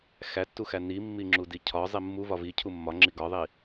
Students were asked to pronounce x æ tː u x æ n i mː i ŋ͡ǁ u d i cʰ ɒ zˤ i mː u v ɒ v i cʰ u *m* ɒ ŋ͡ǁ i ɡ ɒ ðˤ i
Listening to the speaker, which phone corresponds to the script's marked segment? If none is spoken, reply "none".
mː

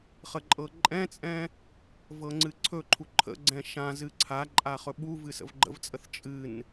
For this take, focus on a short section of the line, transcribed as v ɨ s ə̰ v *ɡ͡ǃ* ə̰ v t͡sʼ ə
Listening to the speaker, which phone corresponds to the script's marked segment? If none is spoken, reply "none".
ɡ͡ǃ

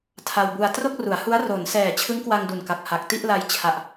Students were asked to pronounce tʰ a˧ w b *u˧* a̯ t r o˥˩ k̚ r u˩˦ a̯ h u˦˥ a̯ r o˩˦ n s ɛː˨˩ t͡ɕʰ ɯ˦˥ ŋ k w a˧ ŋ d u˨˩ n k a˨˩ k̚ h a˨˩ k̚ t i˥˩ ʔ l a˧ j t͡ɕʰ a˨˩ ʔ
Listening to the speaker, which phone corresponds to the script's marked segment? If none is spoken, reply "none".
u˧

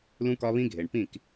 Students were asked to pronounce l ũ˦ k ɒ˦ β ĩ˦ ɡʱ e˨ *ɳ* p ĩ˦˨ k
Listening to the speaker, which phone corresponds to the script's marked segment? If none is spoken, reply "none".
ɳ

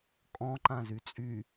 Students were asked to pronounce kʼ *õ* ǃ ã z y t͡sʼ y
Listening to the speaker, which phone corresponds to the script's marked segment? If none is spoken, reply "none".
ɔ̃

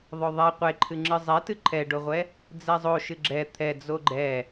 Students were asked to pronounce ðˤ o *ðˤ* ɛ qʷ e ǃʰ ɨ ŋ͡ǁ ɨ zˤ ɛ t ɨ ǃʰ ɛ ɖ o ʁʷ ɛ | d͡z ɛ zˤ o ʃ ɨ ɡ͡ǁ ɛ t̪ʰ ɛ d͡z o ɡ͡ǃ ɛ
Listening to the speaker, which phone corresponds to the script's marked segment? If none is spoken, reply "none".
ðˤ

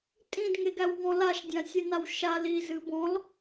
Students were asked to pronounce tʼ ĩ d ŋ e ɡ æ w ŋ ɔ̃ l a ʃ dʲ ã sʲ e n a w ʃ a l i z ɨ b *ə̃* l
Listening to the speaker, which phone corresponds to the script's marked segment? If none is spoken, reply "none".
ɔ̃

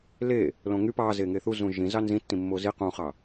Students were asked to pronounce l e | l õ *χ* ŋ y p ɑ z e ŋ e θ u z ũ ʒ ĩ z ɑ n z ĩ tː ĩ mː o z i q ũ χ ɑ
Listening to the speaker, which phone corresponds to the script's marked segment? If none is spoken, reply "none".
none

